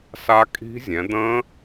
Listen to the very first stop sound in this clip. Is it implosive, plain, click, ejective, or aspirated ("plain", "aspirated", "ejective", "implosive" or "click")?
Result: ejective